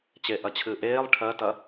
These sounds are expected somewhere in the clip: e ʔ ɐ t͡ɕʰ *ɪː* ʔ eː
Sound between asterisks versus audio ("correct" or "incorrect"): incorrect